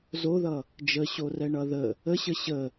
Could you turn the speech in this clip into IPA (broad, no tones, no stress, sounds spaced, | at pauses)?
z o ð ʌ | d͡ʒ ə ɕ o r ɛ ɳ ʌ ð ə | ə ɕ ə ɕ ə